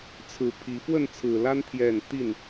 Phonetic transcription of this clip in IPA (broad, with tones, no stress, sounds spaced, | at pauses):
t͡sʰ ɹ̩˨˦ pʰ i˨˦ f w ə˥˨ n t͡sʰ ɹ̩˨˩ l a˦ n t̪ʰ j ɛ˥˨ n t̪ i˥˨ n